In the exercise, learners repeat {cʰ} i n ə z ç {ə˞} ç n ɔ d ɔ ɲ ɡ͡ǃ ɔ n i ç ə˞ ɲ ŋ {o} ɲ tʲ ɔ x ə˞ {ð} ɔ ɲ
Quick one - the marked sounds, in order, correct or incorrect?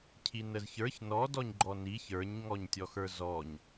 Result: correct, correct, incorrect: ɔ, incorrect: z

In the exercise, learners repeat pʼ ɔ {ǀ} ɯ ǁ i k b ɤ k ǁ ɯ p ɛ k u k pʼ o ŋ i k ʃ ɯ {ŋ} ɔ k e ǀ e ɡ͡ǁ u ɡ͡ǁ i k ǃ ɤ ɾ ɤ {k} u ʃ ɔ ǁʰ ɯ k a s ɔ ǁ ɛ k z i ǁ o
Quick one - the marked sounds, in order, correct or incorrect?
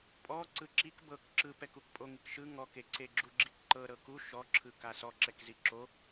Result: correct, correct, correct

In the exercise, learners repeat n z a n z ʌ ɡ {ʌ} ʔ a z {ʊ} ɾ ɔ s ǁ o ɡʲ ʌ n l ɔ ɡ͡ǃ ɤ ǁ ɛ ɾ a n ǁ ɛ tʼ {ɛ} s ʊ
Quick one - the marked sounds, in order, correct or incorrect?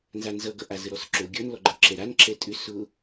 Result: correct, incorrect: ə, incorrect: ʏ

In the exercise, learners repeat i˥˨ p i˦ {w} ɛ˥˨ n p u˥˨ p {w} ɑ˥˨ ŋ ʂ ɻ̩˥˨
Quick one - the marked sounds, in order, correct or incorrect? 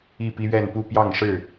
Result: incorrect: ɥ, incorrect: j

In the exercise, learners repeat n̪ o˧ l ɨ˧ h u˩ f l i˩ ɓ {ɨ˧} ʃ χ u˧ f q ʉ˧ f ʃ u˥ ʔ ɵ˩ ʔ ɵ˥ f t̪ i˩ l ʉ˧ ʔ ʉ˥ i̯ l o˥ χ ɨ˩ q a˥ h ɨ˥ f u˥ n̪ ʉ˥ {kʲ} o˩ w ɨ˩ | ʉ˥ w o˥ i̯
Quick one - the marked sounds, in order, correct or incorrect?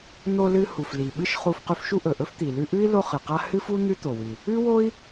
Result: incorrect: ɨ˥, incorrect: t̪

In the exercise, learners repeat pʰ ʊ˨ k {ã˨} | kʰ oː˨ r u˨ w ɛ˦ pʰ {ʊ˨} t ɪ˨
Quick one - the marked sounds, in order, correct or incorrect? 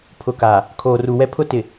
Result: incorrect: a˨, incorrect: ʊ˦

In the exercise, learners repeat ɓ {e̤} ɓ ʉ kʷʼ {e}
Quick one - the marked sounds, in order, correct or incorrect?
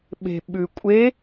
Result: correct, correct

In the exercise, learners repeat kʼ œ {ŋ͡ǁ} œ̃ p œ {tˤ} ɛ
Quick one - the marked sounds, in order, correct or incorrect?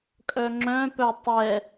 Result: correct, correct

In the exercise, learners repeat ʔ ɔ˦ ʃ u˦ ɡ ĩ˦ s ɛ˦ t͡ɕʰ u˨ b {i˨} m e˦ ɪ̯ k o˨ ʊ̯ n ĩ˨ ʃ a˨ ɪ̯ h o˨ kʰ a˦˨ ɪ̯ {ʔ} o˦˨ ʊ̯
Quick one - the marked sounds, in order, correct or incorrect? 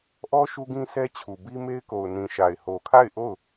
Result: incorrect: i˦, correct

